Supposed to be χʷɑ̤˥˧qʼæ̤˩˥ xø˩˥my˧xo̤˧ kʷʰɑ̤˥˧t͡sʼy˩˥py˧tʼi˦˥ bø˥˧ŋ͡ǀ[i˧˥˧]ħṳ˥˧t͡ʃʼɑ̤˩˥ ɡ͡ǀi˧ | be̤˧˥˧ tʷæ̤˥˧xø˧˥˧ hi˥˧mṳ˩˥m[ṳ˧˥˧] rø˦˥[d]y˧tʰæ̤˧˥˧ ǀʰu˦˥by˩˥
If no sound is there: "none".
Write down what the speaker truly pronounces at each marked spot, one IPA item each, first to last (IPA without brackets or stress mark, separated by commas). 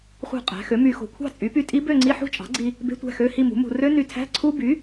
i˧˥˧, ṳ˧, n